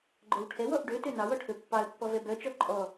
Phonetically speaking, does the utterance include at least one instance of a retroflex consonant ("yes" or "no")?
yes